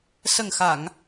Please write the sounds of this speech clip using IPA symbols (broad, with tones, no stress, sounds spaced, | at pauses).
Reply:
s ə˨˩ ŋ x a˨˩˨ ŋ